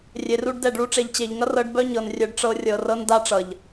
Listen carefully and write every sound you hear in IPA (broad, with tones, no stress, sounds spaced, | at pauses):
rʲ e˨ r u˧ ɖ d ɛ˦˨ ɖ ɭ u˦ ʈ͡ʂ e˨ ʎ t͡ɕ e˨ ʎ ŋ ʌ˦ r ɤ˧ ɖ b œ˦ ɲ ɤ˨ n rʲ œ˧ ɖ ʈ͡ʂ ɤ˧ rʲ ɤ˨ r ɤ˦ n d a˦ ʈ͡ʂ ʌ˨ ʎ